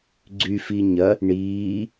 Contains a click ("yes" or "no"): yes